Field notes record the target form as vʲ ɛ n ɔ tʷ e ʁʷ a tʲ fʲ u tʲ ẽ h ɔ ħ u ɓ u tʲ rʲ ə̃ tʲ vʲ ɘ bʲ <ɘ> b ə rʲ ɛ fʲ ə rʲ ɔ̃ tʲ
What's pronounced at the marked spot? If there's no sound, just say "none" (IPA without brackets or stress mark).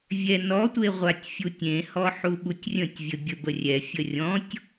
ɘ